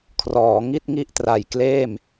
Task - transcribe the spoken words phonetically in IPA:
kʰrɔː˩˦ ŋi˥˩t̚ŋi˥˩ʔtra˨˩j kleː˥˩m

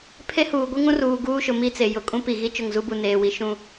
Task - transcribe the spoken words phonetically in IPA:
pʰe˦ huː˨ɡʷi˦ ŋũ˦ruː˨ ɡuː˦ʃʊ˨ mi˦t͡se˨ jʊ˨ kʼũ˦pi˨ɣi˦ t͡ʃʊ˦˨ŋzu˦bu˨ neː˨wi˨ ʃũ˦

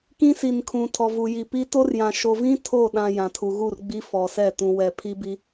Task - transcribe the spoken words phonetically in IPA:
kĩ˦si˨nkʰũ˨ tʰɔ˨vu˨ji˨pi˦ to˦rjã˨ ʃo˨vĩ˦ tʰo˦˨ɗã˨ jã˨tʰu˨ɣu˦˨rɡ͡bi˦ fɔ˨sɛ˦˨ tũ˨wɛ˨pʰi˦bi˦

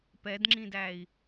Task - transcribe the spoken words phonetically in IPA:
pɛdŋ͡ǁĩdæi̯

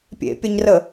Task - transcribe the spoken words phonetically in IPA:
pʲḛpʲaɲrə

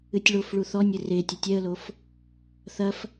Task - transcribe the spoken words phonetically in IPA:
ɨtʲɭofɭu θɔnʲɘ re tʲɐtʲɛə̯lof | θɐf

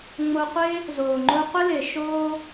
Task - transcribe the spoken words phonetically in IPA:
ŋ͡mo˧qʷɪː˦ | zoː˨ŋ͡ǃo˧qʷɪ˦lɪː˨ ʃoː˧

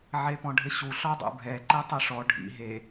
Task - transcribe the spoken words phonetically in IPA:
ʕepɔ̃ɖʱɘɕu ɬɔdˤṵbʱɛ ǃɛtˤɨʂɔ ɖʱḭ ɦe

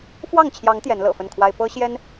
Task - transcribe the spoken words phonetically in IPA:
fwɑ˥˨ŋt͡ɕʰjɑ˨˦ŋ t̪jɛ˨˦nlɤ̰˨˩fə˥˨nkʰwa˦ɪ̯ pɤ˦ɕjɛ˦n

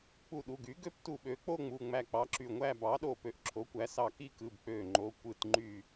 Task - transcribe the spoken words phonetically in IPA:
k͡pu˧˩ɗu˩˧˩ɡy˩˥ɡø˥˧p tu˧˩ɓø˩˥k͡po˥˧ ŋ͡mu˩˧˩ŋ͡mæ˧˩k͡pɑ˩˥ ǁy˧˩ŋʷæ˥˧ bɑ˩˥ɗo˧˩ pø˧˩ʔǁʰo˩˥kʷæ˩˥sɑ˧˩ ki˥˧kɯ˩˧˩bk͡pø˧˩ ŋ͡ǃo˩˧˩ kʷɯ˧˩tŋ͡ǃy˧˩

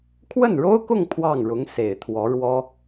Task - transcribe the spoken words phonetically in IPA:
kʰwə˥˩nɻo˥ʊ̯kʊ˥˧ŋ pʰwɑ˥˩ŋɻʊ˧˥ŋ se˨˩ɪ̯t̪ʰwɔ˧˥ɻwɔ˥

